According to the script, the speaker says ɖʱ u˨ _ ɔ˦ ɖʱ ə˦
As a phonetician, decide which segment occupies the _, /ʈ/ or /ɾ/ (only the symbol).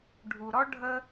ɾ